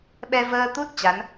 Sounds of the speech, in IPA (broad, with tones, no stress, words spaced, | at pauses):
ɓɛ˧vəː˧t̪u˦˥t̚ t͡ɕa˨˦n